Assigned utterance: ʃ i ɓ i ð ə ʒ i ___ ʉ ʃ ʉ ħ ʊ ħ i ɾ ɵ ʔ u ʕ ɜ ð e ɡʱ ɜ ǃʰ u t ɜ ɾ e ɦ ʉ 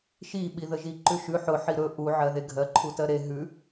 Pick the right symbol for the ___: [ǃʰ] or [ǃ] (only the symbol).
ǃ